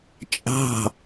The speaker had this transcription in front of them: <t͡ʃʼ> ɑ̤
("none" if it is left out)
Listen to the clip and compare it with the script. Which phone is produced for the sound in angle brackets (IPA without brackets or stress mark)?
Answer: t͡ʃʼ